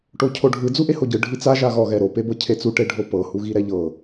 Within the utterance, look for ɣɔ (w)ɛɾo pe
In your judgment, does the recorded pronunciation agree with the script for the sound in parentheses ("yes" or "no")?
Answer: no